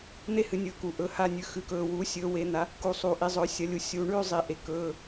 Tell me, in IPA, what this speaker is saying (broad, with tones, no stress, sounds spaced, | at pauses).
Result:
n̪ e˥˩ h ɨ˩˥ nʲ ɵː˩˥ k u˩ ʔ ɵ˩˧˩ h a˥˩ nʲ ʉ˩˥ x ʉ˩˥ k ɵː˩˧˩ w uː˩˥ sʲ ɵː˩˥ w e˩˥ n̪ a˩˥ | k u˩˧ sˤ uː˩ ʔ i˩˧˩ zˤ ɵː˩˥ sʲ ɐ˩˥ lʲ u˩ sʲ u˩ ɳ ʉ˥˩ zˤ i˩ ʔ e˩ k ɵː˩˧˩